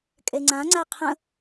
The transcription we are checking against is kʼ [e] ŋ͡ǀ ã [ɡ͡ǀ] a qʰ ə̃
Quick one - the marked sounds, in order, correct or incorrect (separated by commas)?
correct, incorrect